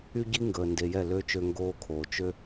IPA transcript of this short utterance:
y˦ ɟ i˦ ŋ ɡ əː˨ n d e˨ j ɛ˦˨ l ø˦ t͡ʃ ø˦ ŋ ɡ oː˦ kʰ oː˨ t͡ʃ ø˦

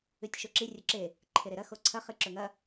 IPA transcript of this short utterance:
ʉ tʲ ʃ o ǁ i rʲ ɵ ǁ e | ǃʰ e ɾ e ɾ ɐ x o ǀʰ ɐ χ i ǁ ɵ ŋ ɐ

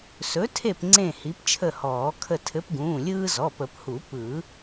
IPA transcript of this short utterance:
s ɵ˨˥ tʰ e˦˨ p ŋ͡ǀ ẽ˦˨ h i˨˥ p t͡ʃʰ ə˦˨ h ɔː˨˩˦ kʰ ə˦˨ tʰ ɘ˨˥ p ɡ ũː˩˧˩ lʲ ɯː˦ z ɔ˩˧˩ p ə˨˩˦ p h u˨˩˦ p ɯ˨˩˦

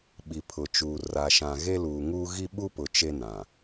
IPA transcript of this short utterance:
ɓ i˨ pʰ ʊ˨ t͡ʃ uː˨ r a˨ ʃ ã˨ ɣ e˦ l uː˨ ŋ u˦ ɣ i˦ ɓ u˦ p ʊ˨ t͡ʃ e˦ n ã˨

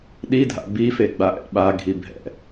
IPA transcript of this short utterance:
ɗ i dʱ a̰ b i f e ɡ͡b a ʔ ɛ̰ ɓ a ɡʱ i bʱ ɛ̰

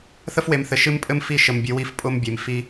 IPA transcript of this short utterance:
θ ə˦ f w e˨ m θ ɘ˨ ʃ ɨ˦ m pʼ ɘ˦ m f i˦˨ ʃ ə˨ m bʲ ɘ˦˨ w i˦˨ f pʼ ʊ˦ m bʲ e˨˦ m f i˦

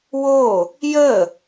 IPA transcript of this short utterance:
w o | j ə

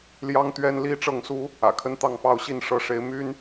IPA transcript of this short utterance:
l j ɑ˦ ŋ t̪ ɥ ɛ˦ n l i˦ ʈ͡ʂ ɤ˥˨ ŋ s u˦ | ä̰˨˩ kʰ ə˦ n t̪ ɑ˥˨ ŋ p ɑ˥˨ ʊ̯ ɕ i˥˨ n ʂ ɤ˨˦ ʂ e˨˦ ɪ̯ m y˦ n

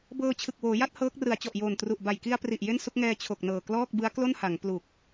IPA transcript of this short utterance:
b ɤː˧ t͡ɕʰ ɯ˨˩ k̚ w oː˩˦ j a˥˩ t̚ h ɤː˦˥ k̚ r ɯ˩˦ a̯ t͡ɕ ɔ˨˩ ʔ j oː˨˩ n t r u˨˩ ʔ b a˨˩ j k i˧ a̯ p r i˨˩ ʔ j e˥˩ n s u˥˩ k̚ ŋ ɛː˧ t͡ɕʰ o˨˩ k̚ n ɤː˨˩ k l ɔː˥˩ k̚ b ɯ˦˥ a̯ k l o˥˩ n h a˩˦ ŋ p l u˨˩ k̚

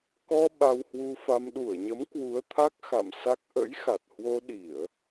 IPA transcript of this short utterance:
k ɔ˧ ɓ a˧ w h w u˧ f a˧ m ɗ u˧˩ ə̯ ɲ ə˨˦ m k w u˨˦ ə̯ t̪ʰ a˦˥ k̚ x a̰˧˨ m s a˦˥ k̚ ʔ ə̰˧˥ j x a˨˩ t̚ h w o˧ ɗ i˧˩˨ ə̯

